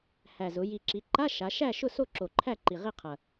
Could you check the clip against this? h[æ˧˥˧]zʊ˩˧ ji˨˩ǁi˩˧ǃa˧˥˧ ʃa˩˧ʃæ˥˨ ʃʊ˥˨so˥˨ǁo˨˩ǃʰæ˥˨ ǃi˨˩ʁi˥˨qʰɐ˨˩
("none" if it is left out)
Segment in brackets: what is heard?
æ˨˩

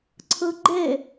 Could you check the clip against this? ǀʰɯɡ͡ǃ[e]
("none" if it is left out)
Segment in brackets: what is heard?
e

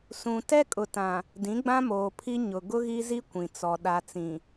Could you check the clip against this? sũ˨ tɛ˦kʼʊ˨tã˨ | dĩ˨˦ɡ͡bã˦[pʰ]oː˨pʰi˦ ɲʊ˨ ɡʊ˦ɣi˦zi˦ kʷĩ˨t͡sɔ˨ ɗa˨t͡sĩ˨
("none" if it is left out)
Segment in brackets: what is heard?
m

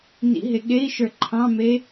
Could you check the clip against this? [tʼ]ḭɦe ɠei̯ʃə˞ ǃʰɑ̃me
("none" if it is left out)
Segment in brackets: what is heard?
n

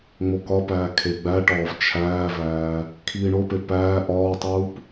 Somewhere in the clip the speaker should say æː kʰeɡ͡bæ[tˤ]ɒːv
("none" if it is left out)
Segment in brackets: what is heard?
ʈ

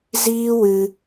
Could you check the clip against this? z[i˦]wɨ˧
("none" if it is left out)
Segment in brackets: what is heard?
iː˦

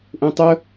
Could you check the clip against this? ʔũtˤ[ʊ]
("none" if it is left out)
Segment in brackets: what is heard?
ʊ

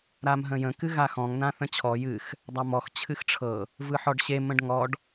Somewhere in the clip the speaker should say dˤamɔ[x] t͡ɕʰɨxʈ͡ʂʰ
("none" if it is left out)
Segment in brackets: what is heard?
x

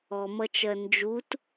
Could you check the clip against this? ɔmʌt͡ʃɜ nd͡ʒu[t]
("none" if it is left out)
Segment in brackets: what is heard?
t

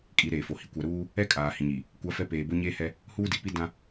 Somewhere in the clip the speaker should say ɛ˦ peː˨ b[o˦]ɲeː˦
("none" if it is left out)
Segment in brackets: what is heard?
o˦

